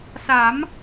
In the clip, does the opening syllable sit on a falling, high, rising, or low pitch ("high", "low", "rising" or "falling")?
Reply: rising